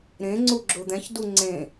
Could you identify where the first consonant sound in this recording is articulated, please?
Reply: alveolar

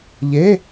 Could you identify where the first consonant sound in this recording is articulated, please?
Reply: palatal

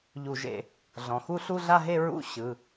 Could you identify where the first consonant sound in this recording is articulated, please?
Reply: palatal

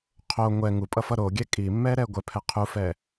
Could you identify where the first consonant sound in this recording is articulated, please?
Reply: uvular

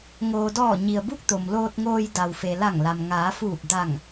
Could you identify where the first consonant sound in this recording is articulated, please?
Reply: velar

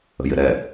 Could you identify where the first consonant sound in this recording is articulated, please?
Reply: palatal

